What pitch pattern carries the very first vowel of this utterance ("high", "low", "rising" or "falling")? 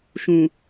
low